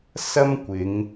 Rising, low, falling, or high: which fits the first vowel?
high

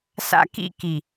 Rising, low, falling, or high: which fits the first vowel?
high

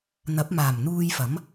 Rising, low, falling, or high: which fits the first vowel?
rising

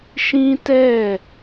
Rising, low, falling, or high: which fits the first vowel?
high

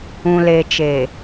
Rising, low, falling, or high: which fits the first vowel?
low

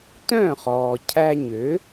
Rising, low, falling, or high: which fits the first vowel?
falling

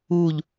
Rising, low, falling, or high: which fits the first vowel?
falling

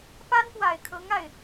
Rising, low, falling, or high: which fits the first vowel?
high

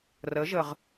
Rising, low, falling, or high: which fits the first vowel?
rising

